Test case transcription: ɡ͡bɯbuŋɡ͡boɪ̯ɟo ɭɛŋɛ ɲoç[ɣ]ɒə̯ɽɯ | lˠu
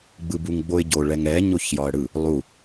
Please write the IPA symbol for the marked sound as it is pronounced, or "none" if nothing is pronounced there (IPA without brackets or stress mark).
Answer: j